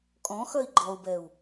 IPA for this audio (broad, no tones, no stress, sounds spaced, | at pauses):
kʼ ɔ̃ x œ i̯ ɡ͡ǃ ɔ u̯ b ɛ u̯